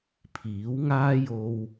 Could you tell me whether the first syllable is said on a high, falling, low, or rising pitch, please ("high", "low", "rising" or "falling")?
rising